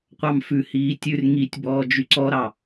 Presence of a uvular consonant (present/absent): present